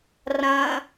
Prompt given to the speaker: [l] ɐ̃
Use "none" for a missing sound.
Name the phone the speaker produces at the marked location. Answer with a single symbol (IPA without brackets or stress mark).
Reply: r